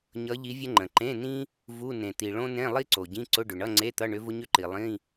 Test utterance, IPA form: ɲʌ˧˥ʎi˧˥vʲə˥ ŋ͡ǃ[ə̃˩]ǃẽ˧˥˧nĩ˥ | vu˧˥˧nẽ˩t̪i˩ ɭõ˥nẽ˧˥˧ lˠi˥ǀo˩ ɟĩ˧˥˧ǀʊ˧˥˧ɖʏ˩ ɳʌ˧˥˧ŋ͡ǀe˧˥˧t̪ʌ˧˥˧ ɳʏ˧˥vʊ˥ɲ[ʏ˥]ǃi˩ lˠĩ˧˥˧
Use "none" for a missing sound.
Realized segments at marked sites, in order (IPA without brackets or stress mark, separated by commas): ə̃˩, ʏ˥